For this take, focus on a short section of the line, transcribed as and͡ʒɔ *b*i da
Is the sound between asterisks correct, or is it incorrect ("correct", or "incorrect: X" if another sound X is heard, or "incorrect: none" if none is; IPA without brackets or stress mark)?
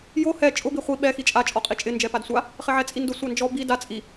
correct